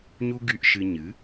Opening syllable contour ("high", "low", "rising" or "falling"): high